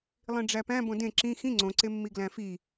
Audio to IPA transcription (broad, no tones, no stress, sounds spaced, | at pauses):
lˠ ĩ ɖ͡ʐ æ p æ̃ b õ d ẽ ǁ ĩ x ĩ ŋ͡ǀ õ ǀ e mː i ɡ l æ̃ f i